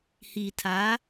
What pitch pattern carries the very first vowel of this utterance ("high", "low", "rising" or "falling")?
low